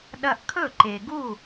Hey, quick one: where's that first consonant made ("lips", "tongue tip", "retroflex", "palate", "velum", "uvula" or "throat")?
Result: tongue tip